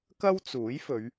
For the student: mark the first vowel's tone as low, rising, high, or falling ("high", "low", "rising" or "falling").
high